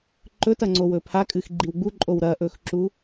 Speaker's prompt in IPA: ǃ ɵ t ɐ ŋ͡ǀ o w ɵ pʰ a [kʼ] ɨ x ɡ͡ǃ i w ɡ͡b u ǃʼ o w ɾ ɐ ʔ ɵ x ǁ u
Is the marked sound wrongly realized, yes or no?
no